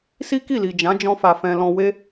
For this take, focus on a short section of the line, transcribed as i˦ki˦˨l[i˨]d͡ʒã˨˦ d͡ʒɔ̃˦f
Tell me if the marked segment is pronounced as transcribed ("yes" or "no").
yes